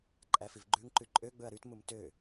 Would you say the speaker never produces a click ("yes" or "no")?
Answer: no